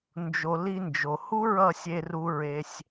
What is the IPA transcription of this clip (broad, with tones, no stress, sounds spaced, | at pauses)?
n d͡ʒ o˨ l i˧ n d͡ʒ o˨ h u˦ ɹ ʌ˦˨ sʲ e˧ r u˧ ɹ e˧ sʲ